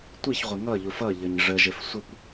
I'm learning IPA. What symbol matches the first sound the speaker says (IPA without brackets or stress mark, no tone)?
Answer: tʷ